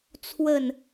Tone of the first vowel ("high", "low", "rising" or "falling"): falling